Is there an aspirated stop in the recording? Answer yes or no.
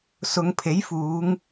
yes